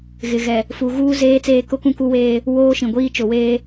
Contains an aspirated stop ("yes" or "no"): no